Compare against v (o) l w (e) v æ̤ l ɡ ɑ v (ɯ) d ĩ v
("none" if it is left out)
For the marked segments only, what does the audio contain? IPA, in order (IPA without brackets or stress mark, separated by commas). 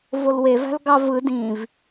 o, e, ɯ